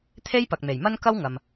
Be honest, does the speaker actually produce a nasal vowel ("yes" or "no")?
no